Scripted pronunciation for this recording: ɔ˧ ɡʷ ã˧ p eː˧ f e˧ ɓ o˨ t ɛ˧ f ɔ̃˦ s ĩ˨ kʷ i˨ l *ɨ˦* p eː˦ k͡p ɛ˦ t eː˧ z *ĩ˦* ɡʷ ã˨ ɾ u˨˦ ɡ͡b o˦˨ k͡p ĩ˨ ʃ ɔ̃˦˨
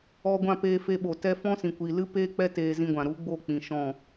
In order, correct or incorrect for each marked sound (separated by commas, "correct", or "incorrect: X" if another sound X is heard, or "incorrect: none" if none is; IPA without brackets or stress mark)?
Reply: correct, incorrect: ĩ˧